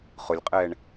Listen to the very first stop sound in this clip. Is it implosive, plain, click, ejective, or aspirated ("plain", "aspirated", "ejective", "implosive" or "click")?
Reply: ejective